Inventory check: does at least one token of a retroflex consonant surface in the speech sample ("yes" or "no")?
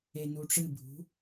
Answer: yes